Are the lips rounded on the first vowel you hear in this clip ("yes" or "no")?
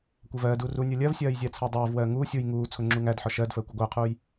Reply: no